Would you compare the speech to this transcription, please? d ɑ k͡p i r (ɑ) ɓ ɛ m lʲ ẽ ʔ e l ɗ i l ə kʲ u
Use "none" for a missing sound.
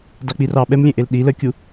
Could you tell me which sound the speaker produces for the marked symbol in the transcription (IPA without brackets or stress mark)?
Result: ɑ